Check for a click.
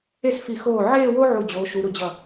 absent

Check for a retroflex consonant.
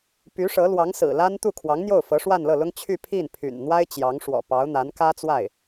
present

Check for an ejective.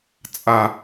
present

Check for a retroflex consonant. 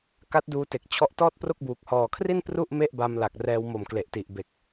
absent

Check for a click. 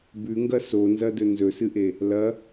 absent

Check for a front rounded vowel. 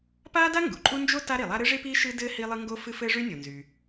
present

